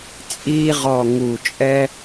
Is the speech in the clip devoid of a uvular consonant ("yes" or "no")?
no